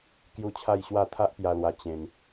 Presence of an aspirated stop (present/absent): present